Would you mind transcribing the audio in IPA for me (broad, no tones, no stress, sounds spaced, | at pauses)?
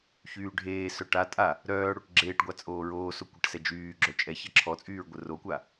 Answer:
ç yː ɖʱ eː s œ ʈ a tʼ a | ɾ œː ɽ o ʈ ɡ͡ǁ eː ʈ ɡʷ a t͡sʼ oː ɹ oː s o kʷ ə ʈ s ɛ d͡ʒ yː ɡ͡ǁ œ t͡ʃʼ ɛ ç ɛ ǁʰ ɔ t͡sʼ yː ɹ ɡʷ ə r o kʷ a